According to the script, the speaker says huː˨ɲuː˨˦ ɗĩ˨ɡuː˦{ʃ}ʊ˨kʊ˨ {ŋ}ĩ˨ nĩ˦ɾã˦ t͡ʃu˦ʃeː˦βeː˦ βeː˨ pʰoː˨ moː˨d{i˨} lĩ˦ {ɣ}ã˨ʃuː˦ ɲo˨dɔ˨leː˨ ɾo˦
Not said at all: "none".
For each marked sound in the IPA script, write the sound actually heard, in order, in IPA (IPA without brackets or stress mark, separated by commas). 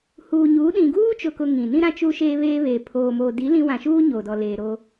t͡ʃ, ŋ, i˨˦, w